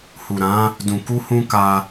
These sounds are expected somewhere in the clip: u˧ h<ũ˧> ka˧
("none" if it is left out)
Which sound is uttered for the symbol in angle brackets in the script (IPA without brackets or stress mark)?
ũ˧